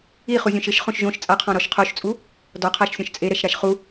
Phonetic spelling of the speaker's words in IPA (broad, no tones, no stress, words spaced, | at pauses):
i χuzʲõʃɪʃ χõʃʒõʃ t͡sʼaqʰɔ̃ɾɔʃ qʰoʃt͡sʼu | dɔqʰaʃ sʲɔ̃ʃt͡sʼeɾɛʃ ɾaʃχu